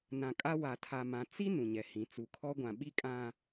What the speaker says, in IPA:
nã˨kʼa˦ wa˨tʰa˨mã˨ t͡si˦ nũ˨ɲɛ˨hĩ˨˦ t͡su˨kʰɔ˦ɡʷã˨ɓi˦ kʼã˨

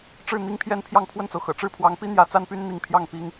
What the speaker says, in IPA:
ʈ͡ʂɻ̩˥˩ n̪i˥ŋpʰjɛ˥˧n pʰjɑ˥˧ŋpʰwə˥˩nt͡so˩ʊ̯xɤ̰˨˩ ʈ͡ʂɻ̩˥˩pʰwɑ˧˥ŋpi˥ n̪jä˧˥t͡sa˥npy˥n n̪i˥˧ŋ pʰjɑ˥˩ŋpi˥ŋ

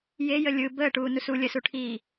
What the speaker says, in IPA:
jejə lʲɯ bəːʈuː nusu lʲəsuʈʰiː

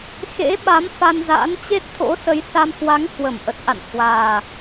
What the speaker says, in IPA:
xḛ˧˥ɓa˨˦m fa˧nza̰ː˧˥n t͡ɕe˦˥t̚t̪ʰo̰˧˥sə˨˦jsa˧m hwa˨˦ŋhwə˧˩mʔə˨˩t̚ʔa̰˧˨n hwaː˨˩

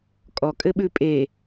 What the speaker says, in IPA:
kʼɔ kʼɘɓʉpʼe

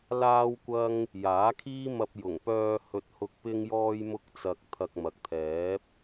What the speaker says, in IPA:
laː˥wkʷɐ˥ŋ | jaː˨˥kʰiː˥mɐ˧p̚ jʊ˨˩ŋpœː˧ hɵ˧t̚hʊ˧k̚ pɪ˥ŋjɔː˥jmʊ˥k̚t͡sɐ˧k̚ t̪ʰɐ˧k̚mɐ˨k̚t̪ʰɛː˨˥p̚

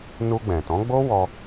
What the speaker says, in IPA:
nu˧ɡ͡bɛ̃˨tɔ̃˨˦ɡ͡bo˦ wɔ˦

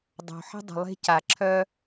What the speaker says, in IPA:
dˤo̤˨ħə̤˧ dˤə̤˨lˠe̤˧ ca˨ ǁʰœ˧

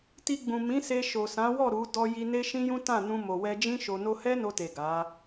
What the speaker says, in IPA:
ti˧ɡ͡bũ˨ mĩ˨˦se˧ ʃo˨sã˨˦wɔ˦˨ ɾu˨˦ dɔ˧ji˧ ne˦ʃĩ˦jũ˦ tã˦˨ nũ˧mo˨wɛ˧d͡ʒĩ˦ ʃo˧no˦ hɛ˦no˧te˨ ɡa˨˦

